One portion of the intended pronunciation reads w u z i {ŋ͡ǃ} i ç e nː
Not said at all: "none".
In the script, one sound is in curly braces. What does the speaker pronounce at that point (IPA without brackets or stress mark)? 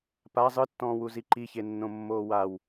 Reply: ǃ